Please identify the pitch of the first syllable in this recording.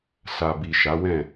low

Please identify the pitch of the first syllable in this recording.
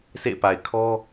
falling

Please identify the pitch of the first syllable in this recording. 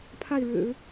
falling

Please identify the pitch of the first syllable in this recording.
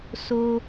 high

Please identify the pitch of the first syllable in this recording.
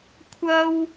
high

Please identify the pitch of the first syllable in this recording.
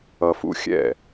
low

